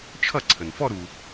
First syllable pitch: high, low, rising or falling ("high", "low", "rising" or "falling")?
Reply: falling